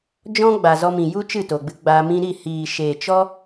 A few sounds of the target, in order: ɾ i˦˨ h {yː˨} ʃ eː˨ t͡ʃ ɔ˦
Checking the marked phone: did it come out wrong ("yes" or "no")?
yes